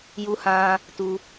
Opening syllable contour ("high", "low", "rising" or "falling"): high